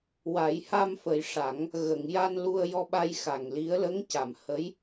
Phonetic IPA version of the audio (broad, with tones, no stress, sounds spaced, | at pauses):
w a˨˩˦ j h a˧ m f ə˨˩ j ʂ a˨˩˦ ŋ | ɣ ə˨˩˨ ŋ j a˧ n l u˧ ə̯ j ɔ˧ ɓ a˧ j x a˨˩ ŋ l i˧˥ ə̯ l ə˧˥ ŋ c a˨˩˨ m h ə˧˥ j